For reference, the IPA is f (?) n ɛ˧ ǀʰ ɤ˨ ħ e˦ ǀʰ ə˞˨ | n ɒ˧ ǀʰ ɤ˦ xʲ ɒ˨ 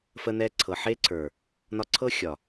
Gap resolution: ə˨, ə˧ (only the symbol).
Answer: ə˧